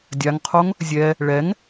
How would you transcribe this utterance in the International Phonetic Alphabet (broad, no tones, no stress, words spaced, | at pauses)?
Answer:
dʲaŋqʰoŋ | zʲɛ | ɭɛŋ